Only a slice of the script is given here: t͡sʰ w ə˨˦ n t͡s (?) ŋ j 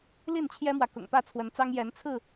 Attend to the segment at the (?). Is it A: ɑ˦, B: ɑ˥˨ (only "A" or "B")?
A